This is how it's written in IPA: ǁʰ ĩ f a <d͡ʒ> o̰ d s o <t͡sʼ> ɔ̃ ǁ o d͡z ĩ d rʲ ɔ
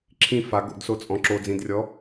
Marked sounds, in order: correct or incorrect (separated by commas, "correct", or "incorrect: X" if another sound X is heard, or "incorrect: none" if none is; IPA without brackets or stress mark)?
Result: incorrect: ɡ, correct